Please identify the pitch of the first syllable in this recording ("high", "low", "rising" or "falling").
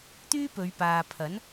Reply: high